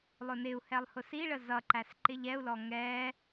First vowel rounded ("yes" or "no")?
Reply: yes